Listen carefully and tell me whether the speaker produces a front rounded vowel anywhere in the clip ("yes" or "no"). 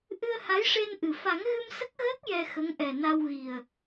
no